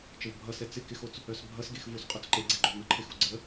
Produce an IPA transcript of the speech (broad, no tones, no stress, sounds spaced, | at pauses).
t͡ʃ ə v bʱ ʌ s ɛ t͡s ɪ k ɪ x o t͡s | œ s bʱ ʌ s ɡ e x v o s qʼ œ t͡s ǃ e ɡ͡ǀ ɪ ɡ͡ǃ o n ʌ ǃʰ ɪ x u ɡ͡ǀ ə